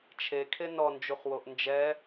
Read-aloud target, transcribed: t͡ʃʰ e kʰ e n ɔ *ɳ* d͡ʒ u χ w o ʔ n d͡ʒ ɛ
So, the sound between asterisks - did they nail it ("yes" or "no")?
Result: no